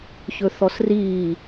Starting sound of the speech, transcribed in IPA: ç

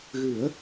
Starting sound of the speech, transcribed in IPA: ɣ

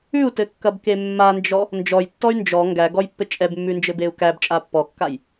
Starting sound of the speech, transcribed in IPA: ʉ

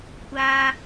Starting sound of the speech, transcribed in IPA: kʷ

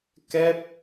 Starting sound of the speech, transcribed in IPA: k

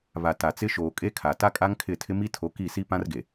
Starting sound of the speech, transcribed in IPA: β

